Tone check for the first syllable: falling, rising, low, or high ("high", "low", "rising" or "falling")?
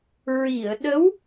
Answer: low